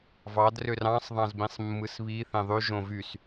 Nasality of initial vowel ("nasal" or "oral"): oral